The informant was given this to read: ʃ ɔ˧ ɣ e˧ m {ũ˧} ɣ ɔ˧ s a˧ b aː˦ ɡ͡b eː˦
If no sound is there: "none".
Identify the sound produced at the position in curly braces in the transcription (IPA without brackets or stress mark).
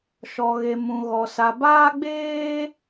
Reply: ũ˧